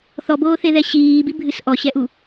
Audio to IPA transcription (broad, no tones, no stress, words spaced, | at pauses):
θɔboːθeðɛ ɕiːbibʱɨs ʔɔɕɛʔu